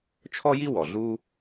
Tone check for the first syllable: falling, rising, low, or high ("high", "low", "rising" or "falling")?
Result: high